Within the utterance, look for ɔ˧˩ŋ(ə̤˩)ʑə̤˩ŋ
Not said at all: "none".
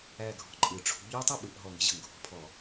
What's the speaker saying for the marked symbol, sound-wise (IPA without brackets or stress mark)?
ə̤˥